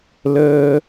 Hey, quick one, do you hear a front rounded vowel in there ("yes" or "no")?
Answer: no